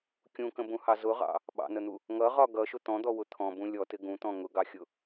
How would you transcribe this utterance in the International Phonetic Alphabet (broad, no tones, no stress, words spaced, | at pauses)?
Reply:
kʲũkə̃bũhɑ zʊʁɑ̰ | ɓɑ̰nən̪u | ŋʌʁɒ ɡʌʃʊ t̪ɔ̃d̪ɔwʊ t̪ʰɔ̃bũ lʲɔtɪ ɡũt̪ɔ̃ ŋʊɡɑxʲʊ